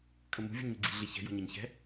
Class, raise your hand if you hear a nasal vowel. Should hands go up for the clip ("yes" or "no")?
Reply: no